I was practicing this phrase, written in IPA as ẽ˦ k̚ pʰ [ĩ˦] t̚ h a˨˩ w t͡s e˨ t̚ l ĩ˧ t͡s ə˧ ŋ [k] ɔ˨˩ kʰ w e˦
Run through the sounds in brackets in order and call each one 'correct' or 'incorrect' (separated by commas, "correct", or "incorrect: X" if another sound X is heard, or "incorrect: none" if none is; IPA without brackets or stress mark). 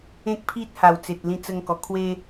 incorrect: i˦, correct